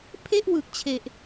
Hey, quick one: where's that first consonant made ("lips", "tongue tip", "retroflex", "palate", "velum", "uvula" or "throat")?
lips